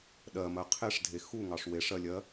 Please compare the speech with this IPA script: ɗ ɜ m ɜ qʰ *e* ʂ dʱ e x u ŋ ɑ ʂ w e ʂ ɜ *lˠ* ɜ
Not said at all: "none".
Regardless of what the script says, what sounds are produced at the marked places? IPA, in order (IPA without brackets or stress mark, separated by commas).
e, lʲ